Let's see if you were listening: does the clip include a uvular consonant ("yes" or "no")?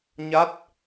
no